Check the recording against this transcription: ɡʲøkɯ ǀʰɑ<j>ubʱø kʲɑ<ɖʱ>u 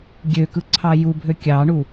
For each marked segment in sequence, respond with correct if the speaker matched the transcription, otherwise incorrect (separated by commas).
correct, incorrect